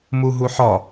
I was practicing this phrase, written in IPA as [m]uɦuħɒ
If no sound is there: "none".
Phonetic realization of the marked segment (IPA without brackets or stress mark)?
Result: m